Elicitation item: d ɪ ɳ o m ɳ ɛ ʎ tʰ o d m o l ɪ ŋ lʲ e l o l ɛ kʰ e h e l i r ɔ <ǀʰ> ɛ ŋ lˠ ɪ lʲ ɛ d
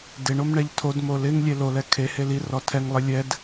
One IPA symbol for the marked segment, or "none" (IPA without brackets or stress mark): tʰ